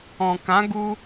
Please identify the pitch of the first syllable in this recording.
low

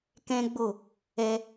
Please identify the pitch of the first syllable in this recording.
high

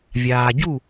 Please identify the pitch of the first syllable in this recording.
low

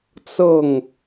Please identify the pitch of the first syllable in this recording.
falling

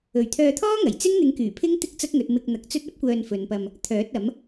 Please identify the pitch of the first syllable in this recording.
low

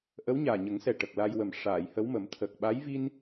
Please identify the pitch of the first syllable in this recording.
rising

